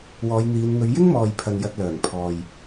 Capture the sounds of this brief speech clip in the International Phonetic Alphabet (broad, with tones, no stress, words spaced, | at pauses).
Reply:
wɔː˨˧jn̪iː˨˧nn̪ɵ˨˧ɥ jɪ˥ŋmɔː˨jpʰɐ˨n jɐ˧t̚lœː˨˩ŋpʰɔː˨j